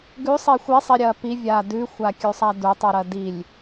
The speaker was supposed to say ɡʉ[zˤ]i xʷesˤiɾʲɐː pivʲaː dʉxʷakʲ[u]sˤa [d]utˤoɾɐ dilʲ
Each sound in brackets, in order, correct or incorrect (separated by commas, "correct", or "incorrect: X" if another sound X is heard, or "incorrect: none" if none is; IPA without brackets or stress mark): incorrect: sˤ, incorrect: ʉ, correct